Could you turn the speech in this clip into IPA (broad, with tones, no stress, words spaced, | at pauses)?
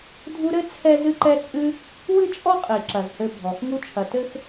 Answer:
dʱu˦ɾɘ˥ t͡sʰɛ˥ zɨ˦ǃɛ˦t͡sʼɨ˦ | wɨ˥t͡ʃʼɔ˥ qʼi˩ǁɐ˩zhɘ˨ bʱɔ˩x ŋu˦t͡ʃʰɐ˨tɘ˥x